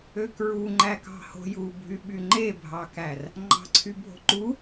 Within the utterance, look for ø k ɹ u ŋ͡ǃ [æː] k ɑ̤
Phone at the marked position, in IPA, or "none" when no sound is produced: æ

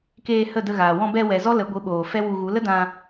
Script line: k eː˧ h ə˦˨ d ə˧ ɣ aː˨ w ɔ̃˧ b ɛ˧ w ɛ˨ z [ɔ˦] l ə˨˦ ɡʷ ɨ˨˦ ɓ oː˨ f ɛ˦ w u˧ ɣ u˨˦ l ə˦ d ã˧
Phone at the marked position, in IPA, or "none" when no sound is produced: ɔ˦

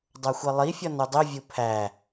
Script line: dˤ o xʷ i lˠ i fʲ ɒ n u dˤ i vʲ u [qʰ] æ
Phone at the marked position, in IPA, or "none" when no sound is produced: pʰ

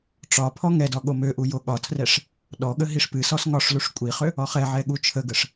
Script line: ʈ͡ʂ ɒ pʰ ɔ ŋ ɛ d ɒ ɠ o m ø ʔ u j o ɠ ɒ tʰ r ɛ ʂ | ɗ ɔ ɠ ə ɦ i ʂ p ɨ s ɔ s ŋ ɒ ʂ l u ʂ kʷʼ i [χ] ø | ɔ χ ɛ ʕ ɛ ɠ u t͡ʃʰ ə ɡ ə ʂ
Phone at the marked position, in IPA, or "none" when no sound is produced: χ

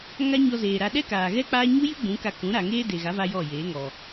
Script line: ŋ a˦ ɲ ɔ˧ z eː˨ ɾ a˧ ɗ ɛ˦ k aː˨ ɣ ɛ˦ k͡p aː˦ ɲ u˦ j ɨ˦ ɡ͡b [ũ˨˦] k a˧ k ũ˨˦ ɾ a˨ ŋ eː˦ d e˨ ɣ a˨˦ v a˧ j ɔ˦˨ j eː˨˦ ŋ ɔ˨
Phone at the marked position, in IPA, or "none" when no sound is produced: ũ˨˦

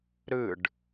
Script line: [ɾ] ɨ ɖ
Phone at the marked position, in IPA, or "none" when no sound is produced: ɾ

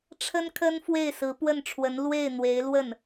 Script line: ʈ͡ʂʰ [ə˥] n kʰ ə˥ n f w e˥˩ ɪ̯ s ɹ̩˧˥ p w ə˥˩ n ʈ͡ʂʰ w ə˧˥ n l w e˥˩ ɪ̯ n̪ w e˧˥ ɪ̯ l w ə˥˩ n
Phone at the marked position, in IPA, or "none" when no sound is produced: ə˥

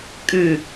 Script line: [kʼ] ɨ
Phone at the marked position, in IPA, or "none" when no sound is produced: kʼ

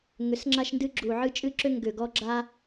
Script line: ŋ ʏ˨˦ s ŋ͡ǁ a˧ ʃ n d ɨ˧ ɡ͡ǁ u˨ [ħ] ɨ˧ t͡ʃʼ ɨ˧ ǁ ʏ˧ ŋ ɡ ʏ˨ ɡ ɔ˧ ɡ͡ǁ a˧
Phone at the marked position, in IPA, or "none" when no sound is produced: ʕ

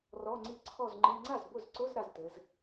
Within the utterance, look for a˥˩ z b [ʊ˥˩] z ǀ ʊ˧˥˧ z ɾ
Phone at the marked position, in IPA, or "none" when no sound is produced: ʊ˥˩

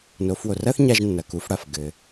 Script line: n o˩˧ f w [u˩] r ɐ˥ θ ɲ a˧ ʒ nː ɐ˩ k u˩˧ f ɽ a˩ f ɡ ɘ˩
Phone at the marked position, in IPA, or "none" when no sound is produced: o˩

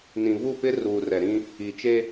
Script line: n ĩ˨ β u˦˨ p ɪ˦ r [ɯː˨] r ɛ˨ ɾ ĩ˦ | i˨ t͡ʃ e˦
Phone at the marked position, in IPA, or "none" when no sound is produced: uː˨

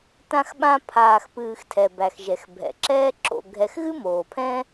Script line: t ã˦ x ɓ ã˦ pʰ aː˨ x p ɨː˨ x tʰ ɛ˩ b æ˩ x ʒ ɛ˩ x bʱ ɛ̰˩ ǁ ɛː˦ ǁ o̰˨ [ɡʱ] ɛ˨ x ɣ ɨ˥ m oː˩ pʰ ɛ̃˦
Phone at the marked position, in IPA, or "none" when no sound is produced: ɡʱ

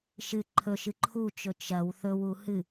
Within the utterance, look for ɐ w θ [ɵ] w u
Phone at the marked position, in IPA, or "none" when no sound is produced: ɵ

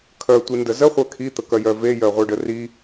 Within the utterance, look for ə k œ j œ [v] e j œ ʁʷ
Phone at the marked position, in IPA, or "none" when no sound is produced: v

